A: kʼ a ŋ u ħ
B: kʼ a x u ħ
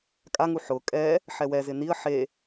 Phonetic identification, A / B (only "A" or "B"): A